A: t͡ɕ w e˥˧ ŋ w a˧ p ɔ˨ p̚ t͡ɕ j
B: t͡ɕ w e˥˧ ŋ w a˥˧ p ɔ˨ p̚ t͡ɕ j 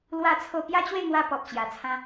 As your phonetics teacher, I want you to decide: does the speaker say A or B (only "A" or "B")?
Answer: A